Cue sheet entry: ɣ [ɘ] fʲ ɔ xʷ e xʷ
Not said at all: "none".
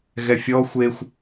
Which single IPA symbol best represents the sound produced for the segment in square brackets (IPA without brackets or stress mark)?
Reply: ɛ